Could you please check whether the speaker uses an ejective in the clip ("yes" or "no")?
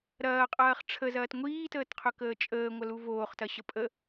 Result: yes